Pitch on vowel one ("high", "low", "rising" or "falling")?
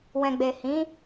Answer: low